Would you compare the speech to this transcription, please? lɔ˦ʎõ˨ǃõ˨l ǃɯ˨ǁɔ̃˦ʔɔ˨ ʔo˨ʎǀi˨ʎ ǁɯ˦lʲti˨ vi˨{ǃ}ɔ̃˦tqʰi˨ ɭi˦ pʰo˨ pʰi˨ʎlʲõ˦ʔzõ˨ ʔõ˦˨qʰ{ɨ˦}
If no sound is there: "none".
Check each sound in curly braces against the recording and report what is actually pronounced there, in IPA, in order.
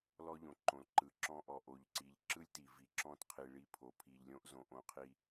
ǁ, i˦

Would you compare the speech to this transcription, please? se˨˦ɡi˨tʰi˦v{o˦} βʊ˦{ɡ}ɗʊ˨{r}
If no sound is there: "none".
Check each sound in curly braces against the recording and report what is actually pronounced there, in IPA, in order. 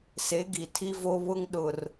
o˦, ŋ, r

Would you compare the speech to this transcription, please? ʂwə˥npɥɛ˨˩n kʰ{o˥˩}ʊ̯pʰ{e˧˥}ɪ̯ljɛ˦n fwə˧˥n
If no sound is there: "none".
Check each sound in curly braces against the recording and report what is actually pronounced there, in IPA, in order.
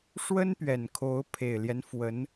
o˧˥, e˨˩

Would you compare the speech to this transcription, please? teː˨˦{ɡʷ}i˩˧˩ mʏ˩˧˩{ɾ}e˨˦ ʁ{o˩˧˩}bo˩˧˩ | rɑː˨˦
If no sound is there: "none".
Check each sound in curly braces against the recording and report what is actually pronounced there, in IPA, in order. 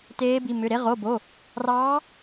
b, ɾ, o˩˧˩

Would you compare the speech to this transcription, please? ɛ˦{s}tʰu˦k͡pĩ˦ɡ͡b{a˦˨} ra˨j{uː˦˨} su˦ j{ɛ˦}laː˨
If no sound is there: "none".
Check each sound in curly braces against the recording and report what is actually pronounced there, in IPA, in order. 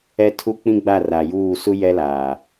none, a˦˨, uː˦˨, ɛ˦

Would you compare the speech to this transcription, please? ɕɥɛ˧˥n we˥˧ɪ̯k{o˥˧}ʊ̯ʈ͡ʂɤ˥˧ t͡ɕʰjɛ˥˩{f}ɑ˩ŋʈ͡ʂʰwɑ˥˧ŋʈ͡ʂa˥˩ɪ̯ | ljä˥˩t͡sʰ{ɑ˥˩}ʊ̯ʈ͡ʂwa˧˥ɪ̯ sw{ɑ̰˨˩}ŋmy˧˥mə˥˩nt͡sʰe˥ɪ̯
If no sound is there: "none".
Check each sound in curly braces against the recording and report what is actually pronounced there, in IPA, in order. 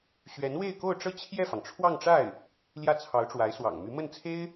o˥˧, f, ɑ˧˥, ɑ̰˨˩

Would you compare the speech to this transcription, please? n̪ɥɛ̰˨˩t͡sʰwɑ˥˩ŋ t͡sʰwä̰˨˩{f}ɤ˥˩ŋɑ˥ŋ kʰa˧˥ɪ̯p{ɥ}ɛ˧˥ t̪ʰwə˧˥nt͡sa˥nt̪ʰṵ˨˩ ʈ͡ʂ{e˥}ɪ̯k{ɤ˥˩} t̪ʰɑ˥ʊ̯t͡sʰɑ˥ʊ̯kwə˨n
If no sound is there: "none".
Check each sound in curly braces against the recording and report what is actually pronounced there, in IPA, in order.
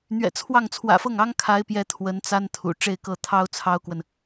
f, j, e˥˧, ɤ˥˩

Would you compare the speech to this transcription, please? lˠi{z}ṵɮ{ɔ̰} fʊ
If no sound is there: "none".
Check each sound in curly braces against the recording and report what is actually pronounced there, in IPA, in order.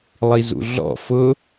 z, ɔ̰

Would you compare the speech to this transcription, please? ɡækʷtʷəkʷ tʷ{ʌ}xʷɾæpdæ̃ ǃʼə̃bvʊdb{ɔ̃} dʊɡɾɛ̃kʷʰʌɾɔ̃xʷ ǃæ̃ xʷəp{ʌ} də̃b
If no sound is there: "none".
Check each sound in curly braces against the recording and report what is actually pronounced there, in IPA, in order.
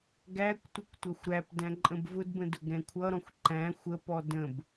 ʌ, ə̃, ɔ

